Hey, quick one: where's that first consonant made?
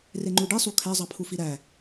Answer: tongue tip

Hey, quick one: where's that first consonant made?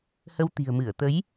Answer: throat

